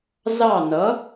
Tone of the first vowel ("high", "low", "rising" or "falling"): falling